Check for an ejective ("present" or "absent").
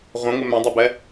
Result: absent